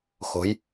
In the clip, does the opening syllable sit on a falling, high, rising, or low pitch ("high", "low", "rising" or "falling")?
rising